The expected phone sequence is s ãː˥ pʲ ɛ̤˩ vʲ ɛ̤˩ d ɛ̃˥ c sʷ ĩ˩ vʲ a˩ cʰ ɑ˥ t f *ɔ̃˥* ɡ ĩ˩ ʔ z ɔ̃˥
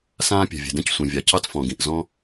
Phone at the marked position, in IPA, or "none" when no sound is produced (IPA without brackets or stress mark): ɔ̃˩